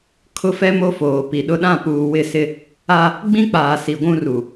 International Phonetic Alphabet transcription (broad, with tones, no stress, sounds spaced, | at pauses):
kʰ ʊ˦ f ɛ˦ m o˦ f oː˨ p i˨ ɗ ʊ˦ ɗ ã˦˨ p uː˨ w ɪ˦˨ s ɪ˦ | a˦ | ɡ͡b ĩ˦ k͡p aː˨ s i˨ ɡʷ ũ˦ r u˨